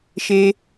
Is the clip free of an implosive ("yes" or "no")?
yes